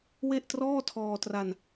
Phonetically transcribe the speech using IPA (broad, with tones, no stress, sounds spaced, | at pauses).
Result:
w e˥˩ ʔ t r ɔː˥˩ tʰ ɔː˧ t r a˧ n